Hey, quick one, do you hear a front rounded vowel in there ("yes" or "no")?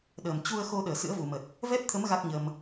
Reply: no